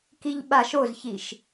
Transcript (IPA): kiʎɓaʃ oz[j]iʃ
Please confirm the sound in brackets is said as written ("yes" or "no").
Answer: no